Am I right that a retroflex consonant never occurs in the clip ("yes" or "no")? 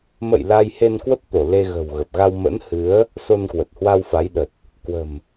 yes